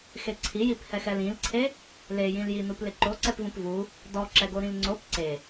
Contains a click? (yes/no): yes